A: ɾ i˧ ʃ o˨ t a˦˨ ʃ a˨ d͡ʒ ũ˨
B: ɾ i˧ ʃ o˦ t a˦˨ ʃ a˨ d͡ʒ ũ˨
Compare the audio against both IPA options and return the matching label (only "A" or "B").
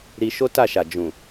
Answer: B